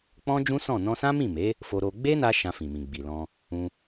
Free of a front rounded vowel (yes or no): yes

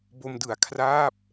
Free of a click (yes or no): yes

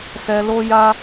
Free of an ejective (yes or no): yes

